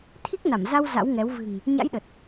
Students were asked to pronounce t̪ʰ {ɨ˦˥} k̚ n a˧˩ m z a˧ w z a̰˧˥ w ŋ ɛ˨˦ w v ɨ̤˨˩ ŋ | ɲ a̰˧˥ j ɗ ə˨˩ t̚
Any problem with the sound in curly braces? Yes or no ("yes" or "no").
yes